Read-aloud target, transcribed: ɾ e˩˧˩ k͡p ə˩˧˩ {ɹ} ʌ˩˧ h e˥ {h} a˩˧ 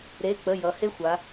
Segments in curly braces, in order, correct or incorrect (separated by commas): incorrect, incorrect